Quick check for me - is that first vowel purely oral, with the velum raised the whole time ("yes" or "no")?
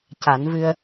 yes